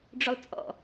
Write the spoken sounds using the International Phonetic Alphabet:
ɖ͡ʐʊlˠt͡sʼɔ̰

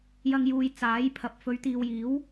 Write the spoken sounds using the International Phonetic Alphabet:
jɐ˧ŋjuː˨j t͡saː˨˥j pʰɐ˨p̚fɵ˨˧ɥ t̪iː˨wjiː˨˥w

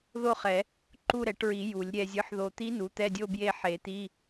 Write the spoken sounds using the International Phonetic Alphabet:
ðo˥˧χɛ˨˩˦ | ǃu˥˧ɾɛ˨˩˦ʈɹi˨˩˦ ju˨˩˦lʲ ɾʲɛ˨zʲɯ˩˥ħðo˨t̪i˧˥ nu˩˥t̪ɛ˧˥˧dʲo˥˧ bje˥˧ħe˨˩˦t̪i˧˥˧

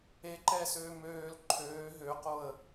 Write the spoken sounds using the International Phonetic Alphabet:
eǃɛːsøː møːl ǃʰøː ɦøqoə̯

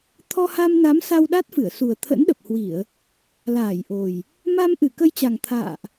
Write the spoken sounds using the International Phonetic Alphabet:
t̪ʰɔ˧ha˧mna˨˦m sa˧w ɗa˦˥t̚fɨ˧˩ə̯ su˨˩ə̯ t̪ʰə̰˧˥nɗə˨˩p̚hwi˧˩˨ə̯ | laː˧˩jʔo˨˩j | ma˧m ʔɨ˧˩kə˧jt͡ɕa˨˩ŋ t̪ʰa̰ː˧˨ʔ

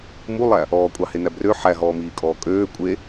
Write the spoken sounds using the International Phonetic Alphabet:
mulˠæ | ɔːkʷʼɑhenæ brø ħæɦɔːmiːkʼɔː kʼøː kʷʼe

